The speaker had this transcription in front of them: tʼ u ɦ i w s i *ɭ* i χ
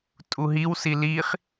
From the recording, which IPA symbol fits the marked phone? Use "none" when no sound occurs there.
l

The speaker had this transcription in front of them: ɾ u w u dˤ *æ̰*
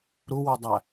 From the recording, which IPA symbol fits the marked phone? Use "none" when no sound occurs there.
æ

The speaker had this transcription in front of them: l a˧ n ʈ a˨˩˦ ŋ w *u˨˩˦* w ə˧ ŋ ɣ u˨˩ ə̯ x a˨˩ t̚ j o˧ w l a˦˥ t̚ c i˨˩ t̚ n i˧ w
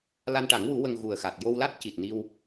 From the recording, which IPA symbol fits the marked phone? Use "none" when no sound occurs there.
u˨˩˦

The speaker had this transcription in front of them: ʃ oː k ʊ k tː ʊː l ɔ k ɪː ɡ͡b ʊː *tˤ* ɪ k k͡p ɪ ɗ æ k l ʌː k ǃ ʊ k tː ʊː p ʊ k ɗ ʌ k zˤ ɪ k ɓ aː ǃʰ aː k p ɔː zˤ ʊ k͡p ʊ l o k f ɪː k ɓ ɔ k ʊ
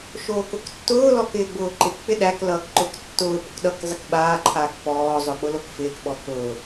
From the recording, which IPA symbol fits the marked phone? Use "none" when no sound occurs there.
ǃ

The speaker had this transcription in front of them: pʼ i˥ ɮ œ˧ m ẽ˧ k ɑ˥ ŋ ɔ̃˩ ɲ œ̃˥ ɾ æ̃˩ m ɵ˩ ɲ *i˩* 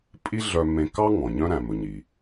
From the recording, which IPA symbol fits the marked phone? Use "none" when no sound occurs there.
i˩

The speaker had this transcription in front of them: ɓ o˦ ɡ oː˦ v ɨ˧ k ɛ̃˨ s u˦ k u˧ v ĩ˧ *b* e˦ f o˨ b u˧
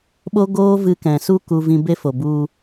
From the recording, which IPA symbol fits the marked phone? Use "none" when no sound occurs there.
b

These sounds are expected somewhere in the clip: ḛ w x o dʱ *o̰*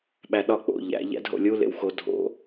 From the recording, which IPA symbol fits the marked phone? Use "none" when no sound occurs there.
o̰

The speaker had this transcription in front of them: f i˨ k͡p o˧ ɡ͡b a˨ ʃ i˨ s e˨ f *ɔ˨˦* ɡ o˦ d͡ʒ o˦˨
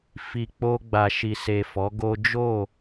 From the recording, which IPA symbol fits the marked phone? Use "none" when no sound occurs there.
ɔ˨˦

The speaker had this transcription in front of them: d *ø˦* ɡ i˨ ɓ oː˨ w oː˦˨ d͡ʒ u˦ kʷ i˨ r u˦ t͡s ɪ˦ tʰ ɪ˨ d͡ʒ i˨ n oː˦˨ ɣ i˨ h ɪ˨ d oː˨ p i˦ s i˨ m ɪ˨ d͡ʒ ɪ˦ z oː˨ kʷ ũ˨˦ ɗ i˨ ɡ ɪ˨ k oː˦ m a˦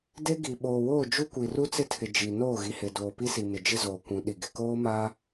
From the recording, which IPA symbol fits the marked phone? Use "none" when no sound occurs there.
e˦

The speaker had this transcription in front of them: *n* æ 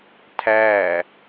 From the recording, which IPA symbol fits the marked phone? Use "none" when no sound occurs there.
tʰ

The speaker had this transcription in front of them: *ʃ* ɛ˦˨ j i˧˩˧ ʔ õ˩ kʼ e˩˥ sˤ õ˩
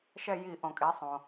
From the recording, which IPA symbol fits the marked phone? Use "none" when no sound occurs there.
ʃ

